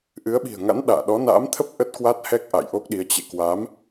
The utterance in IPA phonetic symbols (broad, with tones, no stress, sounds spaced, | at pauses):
ʔ ɨ˨˦ ə̯ ɓ i̤˨˩ ə̯ ŋ a̰˧˥ n ɗ a̰ː˧˨ ɗ ɔ˨˦ n a̰ː˧˥ m t̪ʰ ə˦˥ p̚ ʔ ə˦˥ t̚ k w a˦˥ t̚ h ɛ˦˥ k̚ ʔ a̰˧˨ j ʔ o˦˥ k̚ ɗ i˨˦ ə̯ t͡ɕ ḛ˧˨ k w a˨˦ m